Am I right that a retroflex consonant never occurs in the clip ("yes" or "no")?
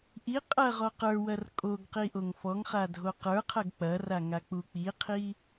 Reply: yes